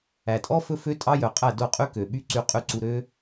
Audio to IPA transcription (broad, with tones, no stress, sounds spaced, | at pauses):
æ˨ tʼ ɔ˦ f ɵ˦ f ø˦ tʼ ɑ˦ j œ˨ qʼ æ˦˨ d o˦˨ qʼ y˦ k ø˨ ɓ y˦ ǀ y˧ qʼ y˧ ǀ u˧ ɾ ø˦